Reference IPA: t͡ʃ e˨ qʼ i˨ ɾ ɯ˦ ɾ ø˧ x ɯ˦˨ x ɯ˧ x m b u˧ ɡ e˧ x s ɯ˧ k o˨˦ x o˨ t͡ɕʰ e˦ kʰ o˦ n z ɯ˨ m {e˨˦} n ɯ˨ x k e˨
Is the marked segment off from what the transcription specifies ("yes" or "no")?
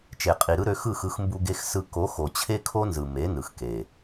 no